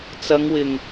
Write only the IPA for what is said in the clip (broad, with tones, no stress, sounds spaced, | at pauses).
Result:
t͡s ɐ˨˧ ŋ w ɪ˨˩ ŋ